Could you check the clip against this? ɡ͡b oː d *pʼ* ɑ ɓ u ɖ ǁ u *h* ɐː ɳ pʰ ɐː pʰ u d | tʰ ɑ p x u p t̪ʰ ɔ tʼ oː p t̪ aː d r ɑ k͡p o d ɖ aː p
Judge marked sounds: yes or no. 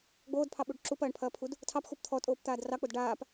no, no

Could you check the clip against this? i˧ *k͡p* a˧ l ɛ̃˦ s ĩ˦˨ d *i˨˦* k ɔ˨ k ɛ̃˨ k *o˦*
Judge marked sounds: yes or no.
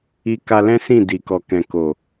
no, no, no

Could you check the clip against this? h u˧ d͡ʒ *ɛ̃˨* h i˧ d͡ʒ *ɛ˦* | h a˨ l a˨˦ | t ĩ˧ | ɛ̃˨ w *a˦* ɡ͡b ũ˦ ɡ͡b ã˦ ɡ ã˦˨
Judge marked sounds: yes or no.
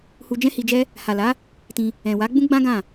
no, yes, no

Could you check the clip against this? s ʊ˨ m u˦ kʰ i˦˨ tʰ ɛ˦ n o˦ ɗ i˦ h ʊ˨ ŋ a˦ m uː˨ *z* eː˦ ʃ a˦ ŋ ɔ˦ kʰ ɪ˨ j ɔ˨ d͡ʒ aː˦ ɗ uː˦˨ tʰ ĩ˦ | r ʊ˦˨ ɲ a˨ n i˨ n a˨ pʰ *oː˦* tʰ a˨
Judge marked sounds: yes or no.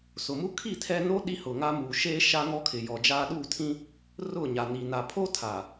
no, no

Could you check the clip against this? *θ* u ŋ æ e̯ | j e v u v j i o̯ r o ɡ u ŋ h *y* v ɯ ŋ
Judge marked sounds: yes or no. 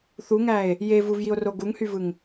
yes, yes

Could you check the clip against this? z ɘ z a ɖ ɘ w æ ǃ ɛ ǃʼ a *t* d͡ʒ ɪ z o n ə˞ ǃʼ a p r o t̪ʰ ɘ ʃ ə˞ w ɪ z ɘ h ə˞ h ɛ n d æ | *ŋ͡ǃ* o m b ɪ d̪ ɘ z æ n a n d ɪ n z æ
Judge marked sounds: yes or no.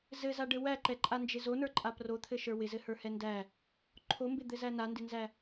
no, no

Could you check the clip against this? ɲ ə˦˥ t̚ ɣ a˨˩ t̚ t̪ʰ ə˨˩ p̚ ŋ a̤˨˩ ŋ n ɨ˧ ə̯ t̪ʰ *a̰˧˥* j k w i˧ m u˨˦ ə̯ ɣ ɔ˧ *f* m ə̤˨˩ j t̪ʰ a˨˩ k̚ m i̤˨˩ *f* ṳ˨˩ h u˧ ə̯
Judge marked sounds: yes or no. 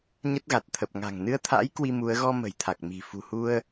yes, no, yes

